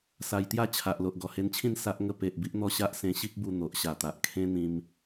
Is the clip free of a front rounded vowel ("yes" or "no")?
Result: yes